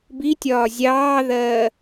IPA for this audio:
bitʲɒː zʲɑːðɜː

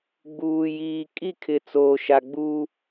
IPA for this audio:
ɡ͡buː˨jiː˨ kʼi˦˨kʰɪ˨ t͡soː˨ ʃa˨ɡ͡buː˦

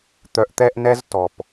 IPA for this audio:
t̪œ˧ʔ t̪ɛ˦ʔnɛ˦z tɔ˨p

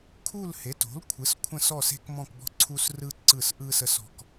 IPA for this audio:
kʰu˦˨l he˩˥to̤˩˥lkʷʰɯ˩˥s kʷʰə̃˦˨sɔ˦˨se̤˦k mɔ̃˦˨kbɔ̤˦ǀʰu˦s rɯ˦ǀɯ˦˨sʔɯ˦sə˦s ɔ̤˦k

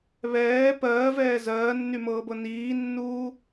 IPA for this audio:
βɛː pɜːvɛː zɜːnːymɤːbɤ niːnːuː

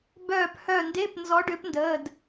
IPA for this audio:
bœː˧˩phœ˧˩nde˧˥˧p nzɔ˨˥ɖʏː˨˥pndəː˩˧˩d

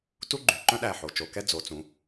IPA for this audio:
tu˥ɡ͡ǃy˨˩ǃœ̃˥ɗæ˨˩ ħo˩˧t͡ʃo˩˧kɛ˥ d͡zo˩˧t͡sũ˩˧

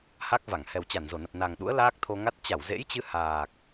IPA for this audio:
ha˦˥k̚va˧˩ŋ hɛ˨˩wt͡ɕa˧˩nzo˧˩nə˨˩p̚ na˨˩ŋɗṵ˧˥ə̯ laː˦˥k̚t̪ʰo˧ŋa˦˥t̚ t͡ɕa˧˩wzḛ˧˥jt͡ɕɨ˧ haː˨˩k̚

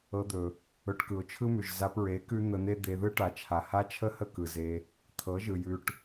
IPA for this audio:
ɤ˧d̪ɵ˨ | ɵ˧ʈkɯ˨ʊ̯t͡ʃʰɯ˦mʉ˨ʒ za˧pɹe˨˦ kʉ˦n̪ə˧n̪e˦ d̪e˧ðɯ˦ ʈa˨t͡ʃʰa˨ ha˦t͡ʃʰə˦hə˦˨ kɯ˨ze˧ | t̪ʰɤ˨˦ʒɯ˨ jʉ˧ʈ

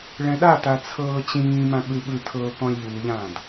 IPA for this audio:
ɭɛ̃ɗata t͡sʰɤːt͡ɕĩːmã ɠɯɓɯtʰɤː kɔ̃lʲʎuːʎãːd

